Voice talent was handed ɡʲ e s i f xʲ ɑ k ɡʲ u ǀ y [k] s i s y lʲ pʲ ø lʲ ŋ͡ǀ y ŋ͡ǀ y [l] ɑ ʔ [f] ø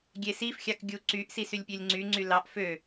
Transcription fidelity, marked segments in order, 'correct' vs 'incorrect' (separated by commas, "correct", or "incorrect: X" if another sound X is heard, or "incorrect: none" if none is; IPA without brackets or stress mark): incorrect: ʔ, correct, correct